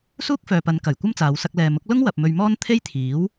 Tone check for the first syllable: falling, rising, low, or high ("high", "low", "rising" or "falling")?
high